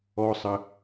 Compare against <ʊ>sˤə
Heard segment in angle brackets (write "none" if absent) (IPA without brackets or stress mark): ɔ